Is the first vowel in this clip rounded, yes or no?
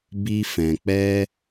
no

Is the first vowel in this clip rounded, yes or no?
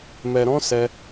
no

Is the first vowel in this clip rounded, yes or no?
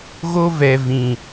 yes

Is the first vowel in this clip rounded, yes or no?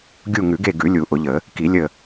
yes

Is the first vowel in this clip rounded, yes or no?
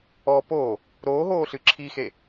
yes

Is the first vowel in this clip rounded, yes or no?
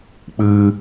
no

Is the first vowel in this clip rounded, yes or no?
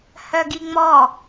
yes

